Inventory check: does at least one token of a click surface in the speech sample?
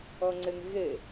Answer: yes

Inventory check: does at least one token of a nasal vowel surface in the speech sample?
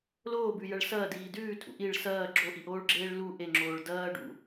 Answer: no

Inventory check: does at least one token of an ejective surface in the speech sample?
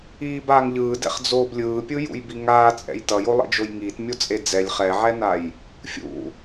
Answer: yes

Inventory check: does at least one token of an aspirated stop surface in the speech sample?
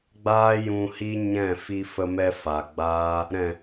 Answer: no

